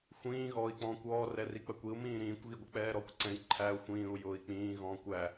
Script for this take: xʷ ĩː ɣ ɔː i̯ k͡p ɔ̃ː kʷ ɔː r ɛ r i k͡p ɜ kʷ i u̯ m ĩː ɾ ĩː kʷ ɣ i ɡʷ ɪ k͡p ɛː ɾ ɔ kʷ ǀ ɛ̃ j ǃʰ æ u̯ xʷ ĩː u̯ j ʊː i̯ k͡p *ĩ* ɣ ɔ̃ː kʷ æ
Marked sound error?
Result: yes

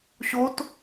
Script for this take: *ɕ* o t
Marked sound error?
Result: no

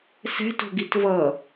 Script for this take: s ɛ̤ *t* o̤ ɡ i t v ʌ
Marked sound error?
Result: no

